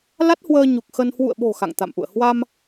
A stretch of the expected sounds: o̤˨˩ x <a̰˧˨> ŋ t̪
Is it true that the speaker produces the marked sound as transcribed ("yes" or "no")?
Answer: yes